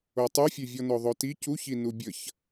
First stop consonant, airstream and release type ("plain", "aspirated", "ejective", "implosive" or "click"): plain